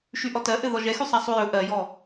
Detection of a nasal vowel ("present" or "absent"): absent